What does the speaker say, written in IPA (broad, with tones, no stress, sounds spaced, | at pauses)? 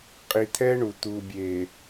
qʼ i˨ t̪ʰ ɛ˦ ɳ u˨ t̪ u˨ bʲ e˨